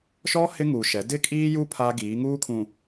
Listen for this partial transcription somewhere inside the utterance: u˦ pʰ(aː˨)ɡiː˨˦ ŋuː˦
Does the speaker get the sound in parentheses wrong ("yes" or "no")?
yes